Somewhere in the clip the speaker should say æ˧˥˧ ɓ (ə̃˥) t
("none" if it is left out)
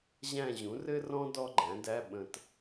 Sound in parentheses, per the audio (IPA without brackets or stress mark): ə̃˨